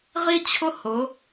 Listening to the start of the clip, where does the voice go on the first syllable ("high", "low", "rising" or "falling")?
high